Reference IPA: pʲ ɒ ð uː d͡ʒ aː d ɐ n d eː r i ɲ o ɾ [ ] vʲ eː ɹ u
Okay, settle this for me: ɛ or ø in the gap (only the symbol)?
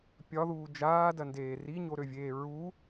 ø